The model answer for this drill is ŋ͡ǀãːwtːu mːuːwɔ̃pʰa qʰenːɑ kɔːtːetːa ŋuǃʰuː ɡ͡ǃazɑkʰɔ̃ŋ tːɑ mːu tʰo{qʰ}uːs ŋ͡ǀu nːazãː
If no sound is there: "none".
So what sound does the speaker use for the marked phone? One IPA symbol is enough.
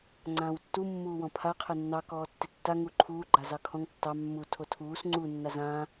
tʰ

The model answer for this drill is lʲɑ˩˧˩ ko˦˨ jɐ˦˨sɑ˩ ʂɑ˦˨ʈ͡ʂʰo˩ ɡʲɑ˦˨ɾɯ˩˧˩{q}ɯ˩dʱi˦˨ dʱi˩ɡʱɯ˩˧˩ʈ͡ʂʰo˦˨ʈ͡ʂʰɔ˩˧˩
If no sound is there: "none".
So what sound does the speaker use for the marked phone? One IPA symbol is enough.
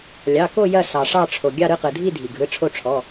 q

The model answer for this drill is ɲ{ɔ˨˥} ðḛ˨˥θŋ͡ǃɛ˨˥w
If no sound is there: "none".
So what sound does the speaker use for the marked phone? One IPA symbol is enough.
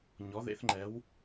ɔ˨˥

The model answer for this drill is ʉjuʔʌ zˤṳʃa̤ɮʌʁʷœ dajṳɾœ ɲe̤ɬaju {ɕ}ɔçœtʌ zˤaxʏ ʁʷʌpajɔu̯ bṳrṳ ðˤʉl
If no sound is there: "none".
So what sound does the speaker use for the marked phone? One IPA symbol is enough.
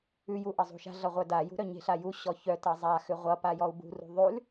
ɕ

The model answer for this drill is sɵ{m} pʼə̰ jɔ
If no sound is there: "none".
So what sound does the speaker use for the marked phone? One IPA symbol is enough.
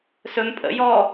m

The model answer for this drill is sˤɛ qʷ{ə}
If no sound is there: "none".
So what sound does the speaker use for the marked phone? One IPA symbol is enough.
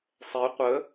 ə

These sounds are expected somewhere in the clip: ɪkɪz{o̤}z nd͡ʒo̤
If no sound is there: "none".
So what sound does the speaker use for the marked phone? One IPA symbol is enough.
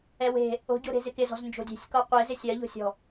ɔ̤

